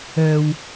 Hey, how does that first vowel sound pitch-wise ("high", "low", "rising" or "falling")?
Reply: high